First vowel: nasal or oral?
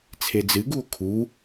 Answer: oral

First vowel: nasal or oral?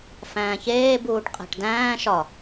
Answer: nasal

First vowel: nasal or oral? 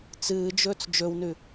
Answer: oral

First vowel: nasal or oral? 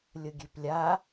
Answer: oral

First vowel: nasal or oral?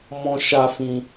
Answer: nasal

